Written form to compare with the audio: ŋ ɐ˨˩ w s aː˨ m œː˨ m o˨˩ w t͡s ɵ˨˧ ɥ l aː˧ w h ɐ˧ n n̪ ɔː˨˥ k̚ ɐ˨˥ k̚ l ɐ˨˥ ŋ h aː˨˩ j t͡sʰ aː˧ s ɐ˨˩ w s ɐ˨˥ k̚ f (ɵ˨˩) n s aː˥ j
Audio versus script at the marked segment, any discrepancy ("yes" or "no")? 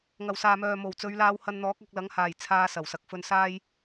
yes